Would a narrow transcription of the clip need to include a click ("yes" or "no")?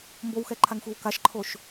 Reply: yes